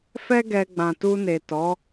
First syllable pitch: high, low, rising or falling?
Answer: high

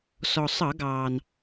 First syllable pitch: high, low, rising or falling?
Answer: low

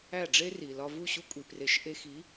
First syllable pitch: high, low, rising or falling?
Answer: falling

